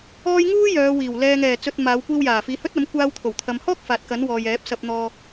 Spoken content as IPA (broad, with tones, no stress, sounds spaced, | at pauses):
ɔː˥ j ŋ uː˥ j œː˨˧ w iː˨˩ w l ɛː˨ ŋ ɛː˨˩ t͡s ɵ˨ t̚ m aː˨˧ w kʷ iː˧ w j aː˨˩ f iː˨˧ h ɵ˥ t̚ ɐ˨˥ m kʷ aː˧ w t̪ʰ o˨˩ w t̪ʰ ɐ˨ m h ɔː˥ k̚ f aː˨ t̚ k ɐ˨˥ n w ɔː˨ j ɛː˨˥ p̚ s ɐ˧ p̚ n̪ ɔː˧